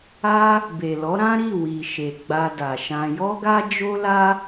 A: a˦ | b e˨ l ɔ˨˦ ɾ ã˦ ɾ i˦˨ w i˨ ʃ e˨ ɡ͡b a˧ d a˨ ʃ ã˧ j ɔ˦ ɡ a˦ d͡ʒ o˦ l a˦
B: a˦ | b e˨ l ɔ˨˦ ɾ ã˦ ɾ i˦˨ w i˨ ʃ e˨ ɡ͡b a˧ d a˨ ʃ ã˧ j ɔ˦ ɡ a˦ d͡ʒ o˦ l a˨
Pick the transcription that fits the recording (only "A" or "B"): A